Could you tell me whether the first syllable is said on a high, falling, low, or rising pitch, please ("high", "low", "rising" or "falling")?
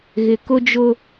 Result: low